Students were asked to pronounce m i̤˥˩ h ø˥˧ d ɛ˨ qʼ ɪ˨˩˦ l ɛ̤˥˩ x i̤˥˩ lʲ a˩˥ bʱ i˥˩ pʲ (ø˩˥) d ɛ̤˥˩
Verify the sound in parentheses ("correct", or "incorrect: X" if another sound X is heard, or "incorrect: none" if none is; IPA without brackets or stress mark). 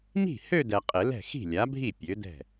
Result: correct